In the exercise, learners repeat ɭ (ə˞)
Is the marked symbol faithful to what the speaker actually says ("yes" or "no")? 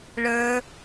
yes